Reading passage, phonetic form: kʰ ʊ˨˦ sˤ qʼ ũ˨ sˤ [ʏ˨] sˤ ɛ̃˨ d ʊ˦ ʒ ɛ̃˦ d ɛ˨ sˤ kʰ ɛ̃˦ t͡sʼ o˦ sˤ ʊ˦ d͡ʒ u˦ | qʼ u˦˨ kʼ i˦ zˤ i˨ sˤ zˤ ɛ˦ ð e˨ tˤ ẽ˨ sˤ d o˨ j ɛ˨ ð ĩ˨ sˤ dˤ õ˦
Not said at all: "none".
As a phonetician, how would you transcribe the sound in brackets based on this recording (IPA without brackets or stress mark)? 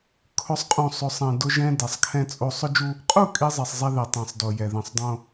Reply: ʏ˨